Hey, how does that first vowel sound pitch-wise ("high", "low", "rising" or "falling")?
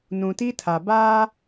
low